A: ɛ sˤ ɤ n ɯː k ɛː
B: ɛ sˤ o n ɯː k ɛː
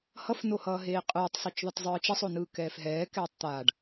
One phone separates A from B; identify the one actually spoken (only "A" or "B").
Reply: B